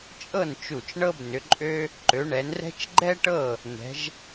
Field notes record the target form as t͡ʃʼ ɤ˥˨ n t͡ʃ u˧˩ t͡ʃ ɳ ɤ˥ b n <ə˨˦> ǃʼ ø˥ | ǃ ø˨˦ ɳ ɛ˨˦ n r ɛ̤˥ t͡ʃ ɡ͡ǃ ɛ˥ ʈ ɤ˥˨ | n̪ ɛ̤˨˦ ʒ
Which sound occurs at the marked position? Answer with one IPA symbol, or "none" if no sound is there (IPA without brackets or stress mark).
ʏ˨˦